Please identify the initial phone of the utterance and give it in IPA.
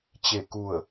t͡ɕ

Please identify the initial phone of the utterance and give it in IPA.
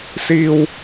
s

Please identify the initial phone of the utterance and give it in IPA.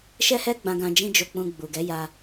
ʃ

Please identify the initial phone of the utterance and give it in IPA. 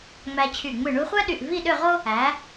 ŋ͡m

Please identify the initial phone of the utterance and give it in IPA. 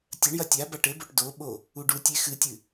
tʲ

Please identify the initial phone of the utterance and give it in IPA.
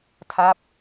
tʰ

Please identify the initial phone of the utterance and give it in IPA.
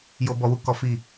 j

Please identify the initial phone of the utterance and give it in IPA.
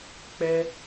k͡p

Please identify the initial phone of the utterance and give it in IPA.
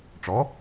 ʈ͡ʂ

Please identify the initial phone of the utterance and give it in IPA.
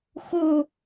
x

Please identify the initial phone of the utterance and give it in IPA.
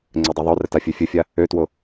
ŋ͡ǀ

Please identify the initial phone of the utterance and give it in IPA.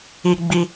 i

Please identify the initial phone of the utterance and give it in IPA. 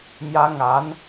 m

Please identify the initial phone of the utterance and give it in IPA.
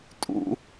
tʼ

